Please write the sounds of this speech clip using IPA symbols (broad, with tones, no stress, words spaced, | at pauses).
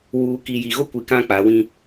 wuː˨ ki˨ji˨ɣo˦kʷi˨ kã˦k͡pa˨˦wĩ˦